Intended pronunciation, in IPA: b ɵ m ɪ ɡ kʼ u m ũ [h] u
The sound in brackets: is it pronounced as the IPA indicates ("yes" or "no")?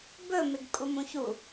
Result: no